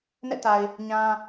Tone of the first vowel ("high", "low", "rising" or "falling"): falling